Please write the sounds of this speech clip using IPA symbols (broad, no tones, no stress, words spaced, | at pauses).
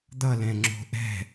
d̪ʌlɛ̃ŋ͡ǁo̤ ʔɛ̤